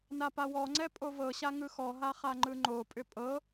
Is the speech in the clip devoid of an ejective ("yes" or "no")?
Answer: no